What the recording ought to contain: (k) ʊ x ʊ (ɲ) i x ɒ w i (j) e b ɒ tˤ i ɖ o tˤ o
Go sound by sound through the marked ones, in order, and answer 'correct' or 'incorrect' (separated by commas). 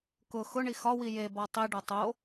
correct, incorrect, correct